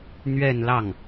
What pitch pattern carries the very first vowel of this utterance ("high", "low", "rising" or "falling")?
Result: falling